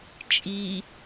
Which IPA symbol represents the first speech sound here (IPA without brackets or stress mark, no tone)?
t͡ʃʼ